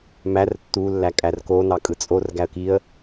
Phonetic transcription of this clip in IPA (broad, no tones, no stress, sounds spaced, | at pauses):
m æ r tː u lː æ kʼ æ r k o n ɑ kʼ ɯ t͡sʼ o r ɡ æ ə̯ k i ə̯